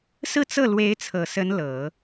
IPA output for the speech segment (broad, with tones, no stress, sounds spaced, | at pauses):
s ɹ̩˥˧ t͡s ɤ˥˩ l w e˧˥ ɪ̯ t͡sʰ ɤ˨˩ s ə˧˥ n l ɤ˨˩˦